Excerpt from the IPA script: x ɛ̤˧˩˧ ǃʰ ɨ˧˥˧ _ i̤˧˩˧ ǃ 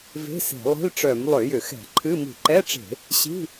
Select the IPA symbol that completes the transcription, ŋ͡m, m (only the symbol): m